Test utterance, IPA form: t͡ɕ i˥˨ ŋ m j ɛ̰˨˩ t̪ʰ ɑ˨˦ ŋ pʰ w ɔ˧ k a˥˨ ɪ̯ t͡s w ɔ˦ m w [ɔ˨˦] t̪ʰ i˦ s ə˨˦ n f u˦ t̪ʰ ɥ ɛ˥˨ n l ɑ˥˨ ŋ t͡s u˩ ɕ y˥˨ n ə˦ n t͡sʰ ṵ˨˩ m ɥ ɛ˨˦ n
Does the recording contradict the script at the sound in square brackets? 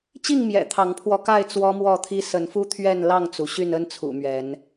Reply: yes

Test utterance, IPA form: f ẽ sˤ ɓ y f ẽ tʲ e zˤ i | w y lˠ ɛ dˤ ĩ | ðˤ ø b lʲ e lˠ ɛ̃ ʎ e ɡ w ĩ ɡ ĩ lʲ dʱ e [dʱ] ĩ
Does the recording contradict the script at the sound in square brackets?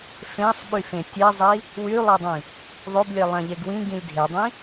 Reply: yes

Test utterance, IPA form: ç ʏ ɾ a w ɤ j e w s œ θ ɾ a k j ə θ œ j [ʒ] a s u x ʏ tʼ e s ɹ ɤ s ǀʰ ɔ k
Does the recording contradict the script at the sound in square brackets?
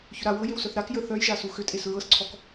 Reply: no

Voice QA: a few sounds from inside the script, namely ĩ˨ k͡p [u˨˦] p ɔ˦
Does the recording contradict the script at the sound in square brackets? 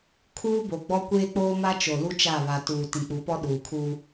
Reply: no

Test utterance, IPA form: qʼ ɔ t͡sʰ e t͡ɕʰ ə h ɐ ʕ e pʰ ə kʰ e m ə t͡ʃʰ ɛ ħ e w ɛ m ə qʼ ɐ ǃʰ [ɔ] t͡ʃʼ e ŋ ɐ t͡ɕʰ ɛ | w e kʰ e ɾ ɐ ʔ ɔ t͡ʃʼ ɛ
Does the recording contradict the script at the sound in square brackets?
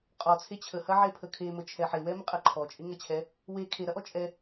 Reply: no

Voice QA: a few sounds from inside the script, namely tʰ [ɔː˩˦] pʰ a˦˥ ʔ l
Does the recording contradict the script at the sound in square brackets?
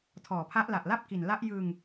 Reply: no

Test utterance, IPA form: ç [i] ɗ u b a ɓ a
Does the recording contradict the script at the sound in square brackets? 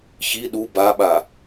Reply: no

